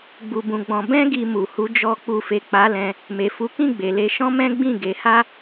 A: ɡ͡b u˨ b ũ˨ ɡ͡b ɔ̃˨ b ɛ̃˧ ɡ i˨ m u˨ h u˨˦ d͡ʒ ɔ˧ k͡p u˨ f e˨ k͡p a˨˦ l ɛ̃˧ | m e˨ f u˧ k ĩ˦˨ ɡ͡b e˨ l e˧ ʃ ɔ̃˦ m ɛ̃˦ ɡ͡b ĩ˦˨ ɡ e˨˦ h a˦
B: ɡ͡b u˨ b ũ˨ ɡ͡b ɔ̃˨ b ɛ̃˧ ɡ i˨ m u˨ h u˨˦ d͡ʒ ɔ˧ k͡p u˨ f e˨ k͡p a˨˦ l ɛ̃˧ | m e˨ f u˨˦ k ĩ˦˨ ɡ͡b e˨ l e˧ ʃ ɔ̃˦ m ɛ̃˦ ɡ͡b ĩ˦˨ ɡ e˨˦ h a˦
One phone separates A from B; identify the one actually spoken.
B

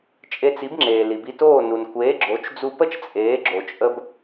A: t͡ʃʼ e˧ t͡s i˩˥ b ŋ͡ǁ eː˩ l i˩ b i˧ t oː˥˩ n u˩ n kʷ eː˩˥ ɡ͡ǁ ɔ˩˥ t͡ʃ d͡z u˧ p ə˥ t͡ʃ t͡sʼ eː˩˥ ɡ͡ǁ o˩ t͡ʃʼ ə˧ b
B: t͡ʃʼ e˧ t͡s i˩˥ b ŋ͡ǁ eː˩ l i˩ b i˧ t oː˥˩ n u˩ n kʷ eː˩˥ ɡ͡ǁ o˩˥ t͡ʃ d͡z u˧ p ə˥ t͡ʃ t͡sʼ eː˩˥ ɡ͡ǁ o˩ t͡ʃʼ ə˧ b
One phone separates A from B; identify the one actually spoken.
B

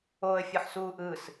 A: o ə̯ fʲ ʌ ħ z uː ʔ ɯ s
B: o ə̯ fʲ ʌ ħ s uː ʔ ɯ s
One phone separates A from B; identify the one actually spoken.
B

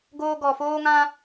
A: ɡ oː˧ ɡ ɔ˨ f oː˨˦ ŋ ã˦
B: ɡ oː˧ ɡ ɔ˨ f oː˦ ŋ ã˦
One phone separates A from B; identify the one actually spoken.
B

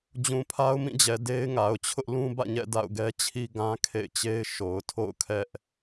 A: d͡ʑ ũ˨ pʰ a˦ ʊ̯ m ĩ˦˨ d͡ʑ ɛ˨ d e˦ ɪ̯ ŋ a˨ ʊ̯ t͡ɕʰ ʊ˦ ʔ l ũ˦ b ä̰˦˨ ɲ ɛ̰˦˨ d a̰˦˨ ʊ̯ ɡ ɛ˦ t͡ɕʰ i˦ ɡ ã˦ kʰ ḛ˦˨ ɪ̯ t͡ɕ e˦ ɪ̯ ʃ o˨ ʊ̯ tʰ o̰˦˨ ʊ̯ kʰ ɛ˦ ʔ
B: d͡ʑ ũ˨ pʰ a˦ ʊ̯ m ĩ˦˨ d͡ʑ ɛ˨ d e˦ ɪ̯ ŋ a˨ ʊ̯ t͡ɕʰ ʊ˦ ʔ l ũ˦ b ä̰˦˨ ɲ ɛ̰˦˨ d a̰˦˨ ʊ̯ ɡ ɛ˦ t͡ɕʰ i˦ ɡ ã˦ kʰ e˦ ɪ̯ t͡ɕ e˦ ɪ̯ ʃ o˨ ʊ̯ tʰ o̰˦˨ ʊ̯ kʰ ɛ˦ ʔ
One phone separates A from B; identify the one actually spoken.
A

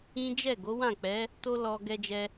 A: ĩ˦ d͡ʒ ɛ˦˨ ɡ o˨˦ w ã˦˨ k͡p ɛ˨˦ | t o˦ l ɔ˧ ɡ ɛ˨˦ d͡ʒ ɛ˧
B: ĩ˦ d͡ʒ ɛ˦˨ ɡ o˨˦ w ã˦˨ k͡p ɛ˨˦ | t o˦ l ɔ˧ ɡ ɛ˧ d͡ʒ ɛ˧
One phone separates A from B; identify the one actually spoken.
B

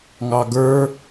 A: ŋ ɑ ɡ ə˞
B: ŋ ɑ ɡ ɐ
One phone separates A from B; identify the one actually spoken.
A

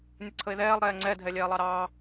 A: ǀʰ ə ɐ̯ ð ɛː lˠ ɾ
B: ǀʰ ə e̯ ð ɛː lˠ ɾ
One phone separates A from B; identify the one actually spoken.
B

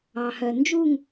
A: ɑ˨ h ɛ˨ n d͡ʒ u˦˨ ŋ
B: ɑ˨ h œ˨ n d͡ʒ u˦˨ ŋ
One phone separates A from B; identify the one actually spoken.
B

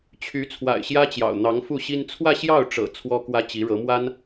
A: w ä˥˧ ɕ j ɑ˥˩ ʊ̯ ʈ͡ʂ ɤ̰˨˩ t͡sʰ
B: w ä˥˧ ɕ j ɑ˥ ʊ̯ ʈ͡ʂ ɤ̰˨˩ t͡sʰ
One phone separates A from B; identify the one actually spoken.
A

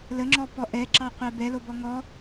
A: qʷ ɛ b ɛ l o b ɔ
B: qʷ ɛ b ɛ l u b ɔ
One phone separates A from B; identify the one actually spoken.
A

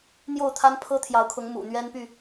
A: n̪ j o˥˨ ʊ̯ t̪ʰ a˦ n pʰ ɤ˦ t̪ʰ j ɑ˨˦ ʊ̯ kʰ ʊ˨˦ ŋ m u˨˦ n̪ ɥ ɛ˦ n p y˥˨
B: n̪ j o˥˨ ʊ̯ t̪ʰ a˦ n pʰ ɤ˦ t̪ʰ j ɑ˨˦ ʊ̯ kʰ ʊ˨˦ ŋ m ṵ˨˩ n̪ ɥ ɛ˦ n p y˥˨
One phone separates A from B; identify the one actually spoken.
B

